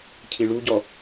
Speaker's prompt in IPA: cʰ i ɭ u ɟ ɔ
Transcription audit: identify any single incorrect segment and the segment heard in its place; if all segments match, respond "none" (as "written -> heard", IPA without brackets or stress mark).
none